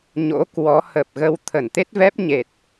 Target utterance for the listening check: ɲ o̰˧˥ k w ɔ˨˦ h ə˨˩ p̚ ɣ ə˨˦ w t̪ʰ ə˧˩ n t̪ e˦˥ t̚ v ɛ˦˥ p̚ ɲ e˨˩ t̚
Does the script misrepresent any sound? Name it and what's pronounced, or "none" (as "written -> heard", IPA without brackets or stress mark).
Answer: none